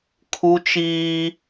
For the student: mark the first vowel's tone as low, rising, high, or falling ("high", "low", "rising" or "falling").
high